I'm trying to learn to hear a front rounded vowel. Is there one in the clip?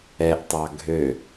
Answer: yes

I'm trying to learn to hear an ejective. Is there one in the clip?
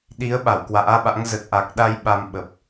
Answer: no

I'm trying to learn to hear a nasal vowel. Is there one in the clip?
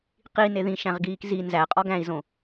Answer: yes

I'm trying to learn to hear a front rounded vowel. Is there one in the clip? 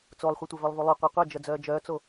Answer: yes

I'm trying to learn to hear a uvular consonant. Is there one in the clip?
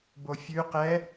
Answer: yes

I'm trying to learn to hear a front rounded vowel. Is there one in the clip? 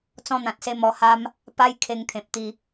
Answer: no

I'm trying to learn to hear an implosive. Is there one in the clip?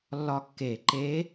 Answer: no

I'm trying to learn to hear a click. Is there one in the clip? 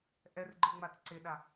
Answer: yes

